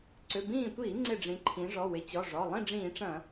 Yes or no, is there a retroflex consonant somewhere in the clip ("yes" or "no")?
yes